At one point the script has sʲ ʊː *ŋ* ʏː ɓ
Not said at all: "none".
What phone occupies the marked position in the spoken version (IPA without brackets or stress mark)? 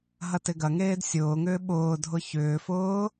ŋ